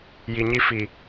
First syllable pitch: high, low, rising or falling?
low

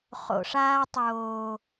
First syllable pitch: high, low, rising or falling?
low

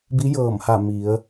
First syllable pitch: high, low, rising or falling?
rising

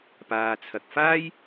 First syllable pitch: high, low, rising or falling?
low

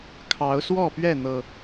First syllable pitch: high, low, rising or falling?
rising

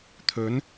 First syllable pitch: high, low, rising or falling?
rising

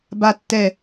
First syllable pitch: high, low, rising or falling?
low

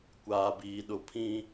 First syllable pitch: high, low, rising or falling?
low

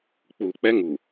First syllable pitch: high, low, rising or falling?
low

